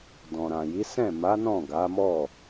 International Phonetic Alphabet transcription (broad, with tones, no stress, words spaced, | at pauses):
dɔ̃˨ɾã˨ji˨˦ sɛ̃˦˨ma˨˦ nɔ̃˦˨ɡa˨˦mɔ˦˨